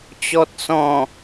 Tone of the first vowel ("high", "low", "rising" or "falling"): low